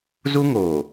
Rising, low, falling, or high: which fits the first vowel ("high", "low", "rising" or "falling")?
high